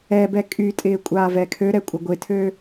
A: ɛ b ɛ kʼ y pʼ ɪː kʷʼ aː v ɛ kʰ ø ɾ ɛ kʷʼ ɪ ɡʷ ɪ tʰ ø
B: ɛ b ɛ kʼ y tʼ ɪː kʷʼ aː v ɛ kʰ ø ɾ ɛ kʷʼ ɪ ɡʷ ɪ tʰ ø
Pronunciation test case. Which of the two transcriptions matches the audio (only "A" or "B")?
B